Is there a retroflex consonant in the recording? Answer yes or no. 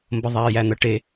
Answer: yes